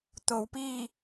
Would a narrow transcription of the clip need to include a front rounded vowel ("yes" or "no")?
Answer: no